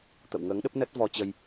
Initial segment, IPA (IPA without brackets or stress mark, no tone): t̪